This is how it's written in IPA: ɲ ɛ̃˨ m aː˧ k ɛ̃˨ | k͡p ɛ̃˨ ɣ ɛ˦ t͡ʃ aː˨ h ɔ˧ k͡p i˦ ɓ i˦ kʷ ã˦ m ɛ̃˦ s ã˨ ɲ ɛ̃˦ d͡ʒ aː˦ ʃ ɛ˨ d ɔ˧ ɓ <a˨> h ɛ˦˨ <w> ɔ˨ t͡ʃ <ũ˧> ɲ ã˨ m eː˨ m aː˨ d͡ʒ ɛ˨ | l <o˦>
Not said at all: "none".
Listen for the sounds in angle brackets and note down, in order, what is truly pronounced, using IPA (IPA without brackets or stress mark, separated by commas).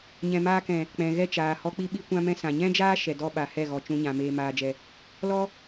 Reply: a˨, ɣ, ũ˧, ɔ˦